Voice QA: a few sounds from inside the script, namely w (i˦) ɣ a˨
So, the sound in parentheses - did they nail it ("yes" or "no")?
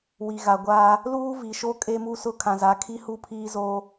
no